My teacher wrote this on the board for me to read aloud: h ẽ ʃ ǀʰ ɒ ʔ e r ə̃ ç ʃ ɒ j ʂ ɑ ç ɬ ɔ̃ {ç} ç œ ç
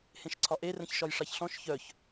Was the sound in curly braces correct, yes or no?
no